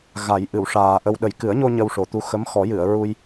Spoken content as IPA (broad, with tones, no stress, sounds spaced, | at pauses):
ɣ a˨˩˦ j ʔ ɨ˨˩˨ w ʂ aː˨˩ ʔ ə˧ w ɗ ə˨˩ j k ɨ˨˩˦ ə̯ ɲ o˧ ɲ ə˧ w ʂ o˨˩ t̪ u˧ x ə˧˥ m x ɔ˨˩˦ j ɨ˨˩˨ ə̯ ɹ u˧ j